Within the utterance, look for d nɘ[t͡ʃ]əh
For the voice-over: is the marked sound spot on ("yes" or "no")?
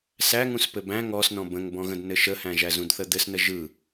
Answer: no